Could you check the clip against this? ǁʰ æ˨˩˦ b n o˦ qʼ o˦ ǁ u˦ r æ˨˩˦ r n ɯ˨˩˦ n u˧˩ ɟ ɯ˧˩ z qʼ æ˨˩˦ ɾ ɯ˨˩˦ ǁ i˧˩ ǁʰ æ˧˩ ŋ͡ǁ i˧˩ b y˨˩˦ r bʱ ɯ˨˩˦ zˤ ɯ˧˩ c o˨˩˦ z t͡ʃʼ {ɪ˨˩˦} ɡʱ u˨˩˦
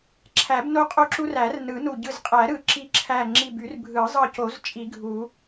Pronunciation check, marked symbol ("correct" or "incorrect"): incorrect